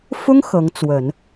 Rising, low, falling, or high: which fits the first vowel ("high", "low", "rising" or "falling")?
high